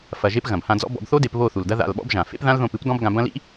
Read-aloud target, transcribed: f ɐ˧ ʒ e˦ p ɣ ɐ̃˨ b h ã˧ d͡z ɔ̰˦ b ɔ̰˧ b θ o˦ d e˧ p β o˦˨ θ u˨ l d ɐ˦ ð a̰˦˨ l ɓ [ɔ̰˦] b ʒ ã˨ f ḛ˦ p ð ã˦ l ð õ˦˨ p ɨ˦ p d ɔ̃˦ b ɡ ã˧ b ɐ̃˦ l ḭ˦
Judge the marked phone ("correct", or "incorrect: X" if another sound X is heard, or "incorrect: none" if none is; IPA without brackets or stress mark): correct